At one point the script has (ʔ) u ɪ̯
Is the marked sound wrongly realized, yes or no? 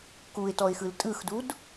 yes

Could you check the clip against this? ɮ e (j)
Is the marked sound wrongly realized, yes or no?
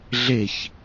yes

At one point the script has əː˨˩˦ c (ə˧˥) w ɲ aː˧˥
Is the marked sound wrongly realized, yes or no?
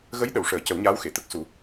yes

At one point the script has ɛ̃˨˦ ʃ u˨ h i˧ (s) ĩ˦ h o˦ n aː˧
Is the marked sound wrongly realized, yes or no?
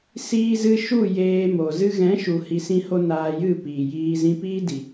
no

